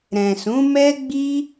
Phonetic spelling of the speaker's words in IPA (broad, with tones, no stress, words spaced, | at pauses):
ɾɛ̃˨sũ˨˦mɛ˦ ɡ͡bi˦